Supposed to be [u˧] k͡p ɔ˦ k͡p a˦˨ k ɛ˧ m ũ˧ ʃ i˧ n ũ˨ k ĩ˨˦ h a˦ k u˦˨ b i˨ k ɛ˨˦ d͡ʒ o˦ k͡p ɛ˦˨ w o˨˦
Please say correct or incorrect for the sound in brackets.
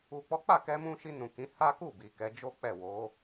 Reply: correct